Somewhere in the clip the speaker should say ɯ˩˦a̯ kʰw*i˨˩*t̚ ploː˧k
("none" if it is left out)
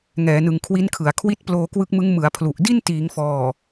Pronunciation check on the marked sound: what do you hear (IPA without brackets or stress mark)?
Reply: i˦˥